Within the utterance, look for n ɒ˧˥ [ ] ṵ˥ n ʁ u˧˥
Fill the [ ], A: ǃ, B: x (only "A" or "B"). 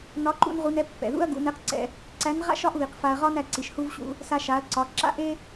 A